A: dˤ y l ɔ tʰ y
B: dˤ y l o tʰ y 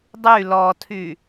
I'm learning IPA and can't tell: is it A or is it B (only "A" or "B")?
A